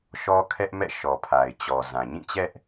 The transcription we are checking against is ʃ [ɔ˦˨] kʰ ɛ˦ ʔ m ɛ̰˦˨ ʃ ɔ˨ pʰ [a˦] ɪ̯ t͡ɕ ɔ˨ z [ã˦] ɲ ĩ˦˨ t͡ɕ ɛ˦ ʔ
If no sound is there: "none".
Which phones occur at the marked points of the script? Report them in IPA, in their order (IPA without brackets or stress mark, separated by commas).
ɔ˦, a˨, ã˨